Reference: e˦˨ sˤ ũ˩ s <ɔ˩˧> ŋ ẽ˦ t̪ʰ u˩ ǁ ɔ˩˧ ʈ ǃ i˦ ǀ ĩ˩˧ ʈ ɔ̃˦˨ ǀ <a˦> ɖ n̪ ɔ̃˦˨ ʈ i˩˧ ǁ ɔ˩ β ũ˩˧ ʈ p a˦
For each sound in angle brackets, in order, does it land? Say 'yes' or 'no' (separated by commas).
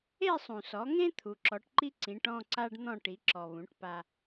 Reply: yes, yes